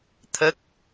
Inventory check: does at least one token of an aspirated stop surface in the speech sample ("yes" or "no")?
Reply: yes